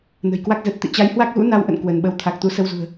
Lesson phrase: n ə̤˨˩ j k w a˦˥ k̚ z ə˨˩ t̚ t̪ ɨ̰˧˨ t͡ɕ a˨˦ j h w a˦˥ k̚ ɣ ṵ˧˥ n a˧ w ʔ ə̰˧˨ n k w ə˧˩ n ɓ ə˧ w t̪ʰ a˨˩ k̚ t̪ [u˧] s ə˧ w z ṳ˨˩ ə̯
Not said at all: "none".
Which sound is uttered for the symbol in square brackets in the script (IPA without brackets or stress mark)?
u˨˦